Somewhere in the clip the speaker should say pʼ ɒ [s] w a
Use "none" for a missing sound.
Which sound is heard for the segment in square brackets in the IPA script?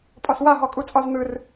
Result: s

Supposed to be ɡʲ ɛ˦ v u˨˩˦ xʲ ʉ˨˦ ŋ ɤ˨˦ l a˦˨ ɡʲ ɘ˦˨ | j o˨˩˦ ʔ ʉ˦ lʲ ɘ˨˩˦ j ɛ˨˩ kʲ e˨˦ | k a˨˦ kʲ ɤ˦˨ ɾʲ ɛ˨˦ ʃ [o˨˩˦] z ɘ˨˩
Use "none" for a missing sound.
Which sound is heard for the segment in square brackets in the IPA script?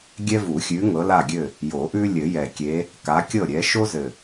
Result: o˦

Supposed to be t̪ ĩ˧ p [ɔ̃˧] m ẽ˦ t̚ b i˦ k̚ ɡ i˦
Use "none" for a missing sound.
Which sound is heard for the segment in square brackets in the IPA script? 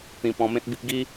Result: ɔ̃˧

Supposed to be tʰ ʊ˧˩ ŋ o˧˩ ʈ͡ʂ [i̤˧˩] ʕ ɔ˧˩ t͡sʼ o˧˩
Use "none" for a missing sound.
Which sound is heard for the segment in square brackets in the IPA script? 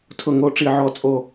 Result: i˧˩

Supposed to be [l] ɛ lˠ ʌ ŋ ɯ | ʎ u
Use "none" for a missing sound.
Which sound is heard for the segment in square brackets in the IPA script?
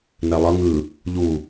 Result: n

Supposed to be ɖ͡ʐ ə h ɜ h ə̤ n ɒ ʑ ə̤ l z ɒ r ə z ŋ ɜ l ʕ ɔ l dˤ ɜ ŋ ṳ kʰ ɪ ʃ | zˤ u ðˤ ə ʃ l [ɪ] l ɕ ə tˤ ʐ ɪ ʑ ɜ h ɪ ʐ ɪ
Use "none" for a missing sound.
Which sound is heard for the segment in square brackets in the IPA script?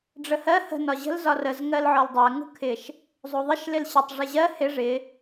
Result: ɪ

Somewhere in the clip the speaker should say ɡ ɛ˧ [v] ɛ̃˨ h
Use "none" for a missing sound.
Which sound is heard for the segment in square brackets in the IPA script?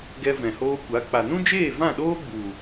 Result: v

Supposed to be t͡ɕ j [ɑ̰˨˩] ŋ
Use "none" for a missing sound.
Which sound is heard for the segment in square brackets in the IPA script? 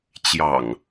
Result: ɑ̰˨˩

